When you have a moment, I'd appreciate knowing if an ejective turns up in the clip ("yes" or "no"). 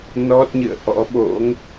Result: no